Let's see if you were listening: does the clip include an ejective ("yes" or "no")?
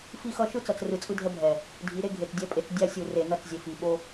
yes